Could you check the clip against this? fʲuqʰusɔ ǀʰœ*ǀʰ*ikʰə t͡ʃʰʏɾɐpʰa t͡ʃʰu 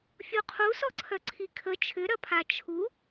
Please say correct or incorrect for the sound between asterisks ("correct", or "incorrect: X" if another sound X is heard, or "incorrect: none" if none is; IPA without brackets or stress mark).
correct